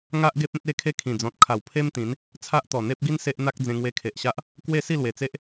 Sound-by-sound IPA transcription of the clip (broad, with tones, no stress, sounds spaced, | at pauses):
ŋ a˦ ʔ ɡ e˦ p̚ ẽ˦ t̚ e˥˧ kʰ e˦ kʰ ĩ˨˩ d͡z ɔ̃˨ t̚ kʰ a˨˩ w pʰ e˦ m t̪ ĩ˨˦ n | t͡sʰ a˦ ʔ t̪ ɔ˨˩ n̪ e˦ p̚ ɡ i˦ n s e˦ ʔ n̪ a˦ k̚ d͡z ẽ˧ ŋ w e˧ kʰ e˨ ʔ ɕ a˦ ʔ | k w e˥˧ s i˥˧ l w e˨˩ t͡s e˦ ʔ